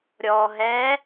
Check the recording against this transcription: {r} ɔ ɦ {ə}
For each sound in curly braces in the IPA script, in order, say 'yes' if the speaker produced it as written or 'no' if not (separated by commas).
no, no